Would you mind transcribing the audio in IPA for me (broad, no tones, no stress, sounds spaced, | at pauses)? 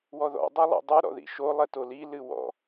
w ɔ ð ɔ̰ dˤ ɛ lˠ ɛ̰ dˤ u ɾ ɔ̰ ð ḭ ʃ o lˠ ɛ t o l i l ɨ w ɔ̰